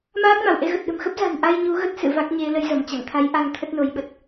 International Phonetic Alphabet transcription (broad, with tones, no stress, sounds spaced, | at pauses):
m aː˦˥ k̚ m a˧˩ w ʔ e˧ ɣ ə˨˩ t̚ ɗ ə̤˨˩ m x ə˦˥ p̚ z a̤˨˩ n ʔ a˧ j ɲ u˨˦ ɣ ə˦˥ t̚ s ɨ̰˧˨ v a˦˥ k̚ ɲ e˨˦ l ə˨˦ j z ə˧˩ m t͡ɕ a̰˧˨ ŋ t̪ʰ a˨˦ j ʔ a˧ ŋ t̪ʰ ə˦˥ t̚ n o˨˦ j ɓ ə˨˩ t̚